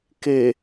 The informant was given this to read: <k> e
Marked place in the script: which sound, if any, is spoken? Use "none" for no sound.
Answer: k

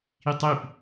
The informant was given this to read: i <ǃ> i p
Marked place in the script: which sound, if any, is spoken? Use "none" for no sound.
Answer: tˤ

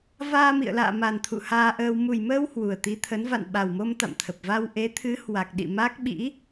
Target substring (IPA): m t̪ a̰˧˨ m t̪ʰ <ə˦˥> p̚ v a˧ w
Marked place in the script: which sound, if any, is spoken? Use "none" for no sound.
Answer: ə˨˩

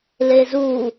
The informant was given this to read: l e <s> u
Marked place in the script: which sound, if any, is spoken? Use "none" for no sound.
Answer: z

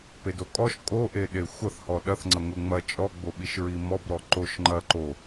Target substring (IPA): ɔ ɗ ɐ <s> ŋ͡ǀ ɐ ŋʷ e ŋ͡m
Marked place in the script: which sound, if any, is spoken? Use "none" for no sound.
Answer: θ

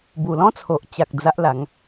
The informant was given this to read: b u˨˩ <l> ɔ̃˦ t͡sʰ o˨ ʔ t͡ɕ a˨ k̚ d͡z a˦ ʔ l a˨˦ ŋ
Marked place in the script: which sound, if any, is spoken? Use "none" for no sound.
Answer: l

